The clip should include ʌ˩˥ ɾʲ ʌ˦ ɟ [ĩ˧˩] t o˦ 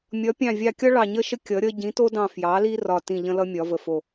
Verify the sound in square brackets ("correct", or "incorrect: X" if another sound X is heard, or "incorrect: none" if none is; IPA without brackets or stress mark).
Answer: incorrect: ĩ˩˥